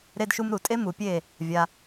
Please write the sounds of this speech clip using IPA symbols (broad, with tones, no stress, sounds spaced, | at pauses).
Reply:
ɾ e˦ d ʃ u˦ m ɾ u˨ tʼ e˦ m u˨ pʲ e˦˨ | vʲ a˧